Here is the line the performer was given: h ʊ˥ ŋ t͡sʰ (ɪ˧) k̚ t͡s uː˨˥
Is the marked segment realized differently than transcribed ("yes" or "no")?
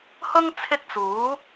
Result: yes